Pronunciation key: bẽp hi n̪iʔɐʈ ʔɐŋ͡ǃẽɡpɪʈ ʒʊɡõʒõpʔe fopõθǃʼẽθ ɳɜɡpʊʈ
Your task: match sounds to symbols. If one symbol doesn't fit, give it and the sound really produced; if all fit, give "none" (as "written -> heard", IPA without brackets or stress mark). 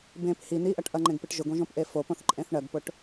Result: none